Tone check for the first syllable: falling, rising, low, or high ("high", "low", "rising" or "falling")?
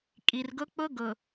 low